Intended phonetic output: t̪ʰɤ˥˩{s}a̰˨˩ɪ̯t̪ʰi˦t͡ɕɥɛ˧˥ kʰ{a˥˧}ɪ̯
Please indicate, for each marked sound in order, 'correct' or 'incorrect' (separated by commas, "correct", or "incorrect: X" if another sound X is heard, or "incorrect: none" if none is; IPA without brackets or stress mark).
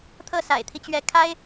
correct, incorrect: a˥